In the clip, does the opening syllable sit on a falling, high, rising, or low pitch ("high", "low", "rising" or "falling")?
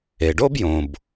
low